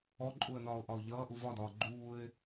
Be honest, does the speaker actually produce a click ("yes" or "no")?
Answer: yes